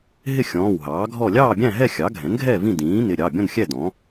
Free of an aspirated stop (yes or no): yes